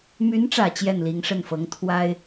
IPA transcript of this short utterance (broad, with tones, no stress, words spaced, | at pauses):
my˧˥nʈ͡ʂä˨˩ t͡ɕjɛ˥˩nli˧˥ŋʂə˥˩nfɤ˧˥ŋ t̪ʰwa˥ɪ̯